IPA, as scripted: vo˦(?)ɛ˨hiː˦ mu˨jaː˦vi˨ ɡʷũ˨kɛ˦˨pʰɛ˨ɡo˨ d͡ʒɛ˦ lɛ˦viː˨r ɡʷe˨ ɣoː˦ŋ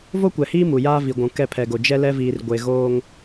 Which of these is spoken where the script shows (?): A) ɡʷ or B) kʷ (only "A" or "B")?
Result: B